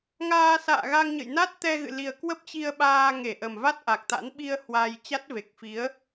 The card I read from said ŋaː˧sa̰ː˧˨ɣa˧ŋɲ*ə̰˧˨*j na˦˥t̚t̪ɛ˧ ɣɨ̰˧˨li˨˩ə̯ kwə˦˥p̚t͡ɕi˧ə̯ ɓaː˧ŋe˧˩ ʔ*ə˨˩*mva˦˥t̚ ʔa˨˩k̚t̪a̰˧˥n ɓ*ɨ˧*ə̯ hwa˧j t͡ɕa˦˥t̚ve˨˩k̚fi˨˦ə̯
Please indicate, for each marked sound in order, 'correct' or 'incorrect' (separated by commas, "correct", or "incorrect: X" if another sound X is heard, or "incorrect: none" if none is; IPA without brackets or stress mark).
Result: correct, correct, incorrect: i˧